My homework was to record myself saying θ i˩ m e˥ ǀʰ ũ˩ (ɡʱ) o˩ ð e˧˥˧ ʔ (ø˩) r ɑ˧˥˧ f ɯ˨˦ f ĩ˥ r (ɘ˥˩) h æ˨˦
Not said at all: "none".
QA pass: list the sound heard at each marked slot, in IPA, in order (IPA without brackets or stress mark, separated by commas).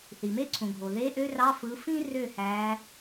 ɡʱ, ø˥, ø˥˩